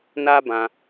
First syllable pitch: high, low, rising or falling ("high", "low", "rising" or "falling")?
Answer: high